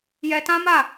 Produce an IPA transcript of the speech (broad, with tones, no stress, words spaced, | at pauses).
jɛ˧tã˦ma˦˨